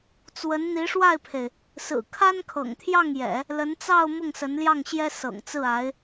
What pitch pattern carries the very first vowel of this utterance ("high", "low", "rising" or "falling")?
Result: rising